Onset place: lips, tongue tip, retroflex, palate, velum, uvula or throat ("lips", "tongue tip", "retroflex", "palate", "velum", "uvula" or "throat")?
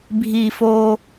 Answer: lips